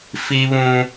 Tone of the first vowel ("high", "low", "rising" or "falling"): high